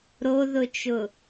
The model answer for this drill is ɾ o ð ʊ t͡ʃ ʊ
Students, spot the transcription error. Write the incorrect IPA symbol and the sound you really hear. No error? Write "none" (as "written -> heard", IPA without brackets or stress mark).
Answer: none